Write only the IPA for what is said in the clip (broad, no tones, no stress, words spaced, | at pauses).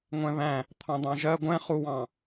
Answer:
ŋʷɛ̃βæ̃ | t̪ʰɑ̃d̪ɑ̃ʒɜ ɡʷɛ̃ χuwɑ̃